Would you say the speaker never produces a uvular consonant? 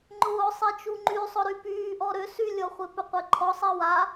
no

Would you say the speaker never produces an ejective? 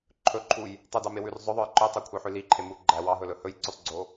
yes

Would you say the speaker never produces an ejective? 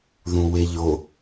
yes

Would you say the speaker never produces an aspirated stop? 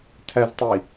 no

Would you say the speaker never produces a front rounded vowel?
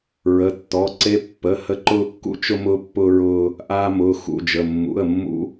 yes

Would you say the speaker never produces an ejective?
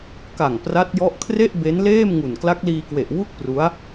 yes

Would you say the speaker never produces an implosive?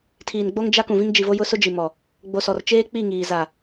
yes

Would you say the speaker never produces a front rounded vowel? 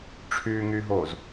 no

